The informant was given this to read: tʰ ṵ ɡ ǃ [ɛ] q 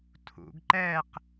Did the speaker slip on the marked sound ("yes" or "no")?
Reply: no